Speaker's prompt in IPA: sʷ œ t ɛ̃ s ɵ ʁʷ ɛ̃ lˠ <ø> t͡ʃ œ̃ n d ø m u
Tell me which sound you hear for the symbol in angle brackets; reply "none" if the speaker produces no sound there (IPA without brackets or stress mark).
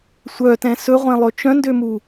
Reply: ɵ